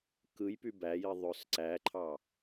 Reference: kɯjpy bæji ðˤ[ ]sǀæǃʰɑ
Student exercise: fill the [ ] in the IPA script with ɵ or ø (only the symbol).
ø